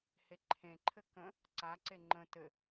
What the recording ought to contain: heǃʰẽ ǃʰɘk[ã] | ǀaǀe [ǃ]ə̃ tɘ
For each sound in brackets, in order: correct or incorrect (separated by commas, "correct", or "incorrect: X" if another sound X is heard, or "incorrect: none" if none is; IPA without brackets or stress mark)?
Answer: incorrect: ə̃, incorrect: ŋ͡ǃ